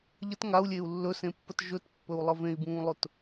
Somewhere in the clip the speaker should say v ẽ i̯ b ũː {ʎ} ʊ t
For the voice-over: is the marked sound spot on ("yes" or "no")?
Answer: no